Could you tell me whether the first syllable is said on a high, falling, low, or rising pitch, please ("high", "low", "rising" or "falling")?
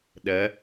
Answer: rising